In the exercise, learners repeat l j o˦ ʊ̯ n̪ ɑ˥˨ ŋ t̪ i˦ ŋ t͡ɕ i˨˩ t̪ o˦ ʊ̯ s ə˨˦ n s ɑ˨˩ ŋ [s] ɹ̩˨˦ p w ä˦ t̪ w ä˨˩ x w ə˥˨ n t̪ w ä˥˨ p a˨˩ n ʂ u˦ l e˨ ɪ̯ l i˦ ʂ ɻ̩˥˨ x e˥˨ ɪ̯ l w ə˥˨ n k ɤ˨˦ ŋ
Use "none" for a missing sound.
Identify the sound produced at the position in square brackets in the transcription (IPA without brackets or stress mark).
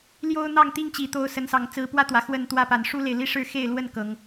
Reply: t͡s